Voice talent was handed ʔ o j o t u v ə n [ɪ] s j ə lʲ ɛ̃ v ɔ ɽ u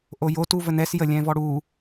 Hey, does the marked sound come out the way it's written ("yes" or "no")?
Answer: no